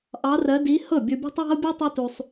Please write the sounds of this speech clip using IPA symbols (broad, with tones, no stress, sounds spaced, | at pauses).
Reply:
ʔ ɑ˧˥ r ɜ˧˥ d i˧˥ h ɤ˥˩ bʲ o˧ bʲ ɑ̤˥ tˤ w a̤˥ o̯ bʲ o˥ tˤ o˥ t u˧ sˤ